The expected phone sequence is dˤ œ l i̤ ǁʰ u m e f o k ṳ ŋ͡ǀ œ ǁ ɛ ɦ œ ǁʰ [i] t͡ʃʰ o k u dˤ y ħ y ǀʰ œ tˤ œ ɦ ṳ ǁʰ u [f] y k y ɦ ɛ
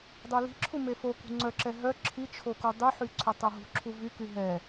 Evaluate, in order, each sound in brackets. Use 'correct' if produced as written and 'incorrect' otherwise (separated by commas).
correct, incorrect